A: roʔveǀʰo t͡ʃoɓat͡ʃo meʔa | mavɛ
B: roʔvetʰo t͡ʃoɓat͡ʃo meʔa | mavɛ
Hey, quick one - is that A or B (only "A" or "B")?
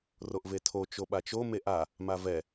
B